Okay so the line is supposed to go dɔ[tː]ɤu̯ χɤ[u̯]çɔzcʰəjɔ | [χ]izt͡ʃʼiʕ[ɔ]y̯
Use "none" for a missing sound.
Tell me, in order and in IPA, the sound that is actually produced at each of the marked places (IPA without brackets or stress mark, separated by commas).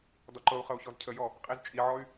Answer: ǃ, u̯, qʼ, ɔ